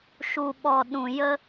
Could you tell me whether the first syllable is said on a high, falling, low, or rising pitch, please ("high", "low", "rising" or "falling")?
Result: low